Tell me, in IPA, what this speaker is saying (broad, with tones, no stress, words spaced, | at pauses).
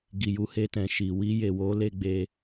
ɡi˨ju˧he˧tɛ̃˨ ʃi˨ wi˧je˨wo˨˦ le˦ɡ͡be˦